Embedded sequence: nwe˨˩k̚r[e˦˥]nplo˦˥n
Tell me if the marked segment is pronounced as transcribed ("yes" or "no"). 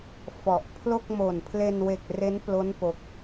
yes